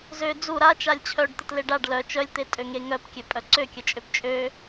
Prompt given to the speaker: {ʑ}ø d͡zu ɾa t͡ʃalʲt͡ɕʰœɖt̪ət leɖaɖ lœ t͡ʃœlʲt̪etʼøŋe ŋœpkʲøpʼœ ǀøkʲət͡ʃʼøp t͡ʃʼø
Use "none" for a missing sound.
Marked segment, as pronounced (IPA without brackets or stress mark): z